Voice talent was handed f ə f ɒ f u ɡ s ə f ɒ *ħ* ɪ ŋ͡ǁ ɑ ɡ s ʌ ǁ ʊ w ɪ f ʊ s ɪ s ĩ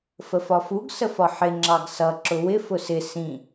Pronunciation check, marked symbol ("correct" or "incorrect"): correct